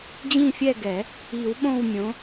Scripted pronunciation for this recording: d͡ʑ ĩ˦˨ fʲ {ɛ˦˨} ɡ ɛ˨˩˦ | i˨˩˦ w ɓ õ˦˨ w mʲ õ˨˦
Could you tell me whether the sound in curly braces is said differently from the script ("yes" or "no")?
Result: no